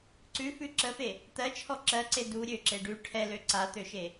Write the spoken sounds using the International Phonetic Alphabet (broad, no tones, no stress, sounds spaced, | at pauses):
ǀ ʉ f ʉ ǁ ə f e | t̪ ɜ t͡ʃʰ ɔ ǁ ɜ ǀ e d u ɾʲ ø ǁ e ɖ ʉ ʈʰ ɛ l ø ǀ a t̪ ø ʃ e